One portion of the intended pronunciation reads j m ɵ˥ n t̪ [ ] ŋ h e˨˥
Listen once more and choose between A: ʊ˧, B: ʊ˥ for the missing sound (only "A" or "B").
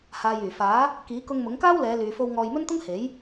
B